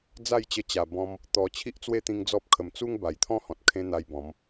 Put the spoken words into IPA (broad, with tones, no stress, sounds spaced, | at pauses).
d͡z a˥˧ j t͡ɕ ə˧ t͡ɕ a˨˩ b ɔ̃˧ m | t̪ ɔ˨˩ t͡ɕʰ i˦ ʔ t͡s w e˦ t̪ ĩ˧ ŋ d͡z ɔ˦ p̚ kʰ ə˧ m t͡s u˦ ŋ b a˨˩ j t̪ʰ ɔ̃˦ h ɔ̃˨ t̚ kʰ ẽ˧ n̪ a˧ j b ɔ̃˨˦ m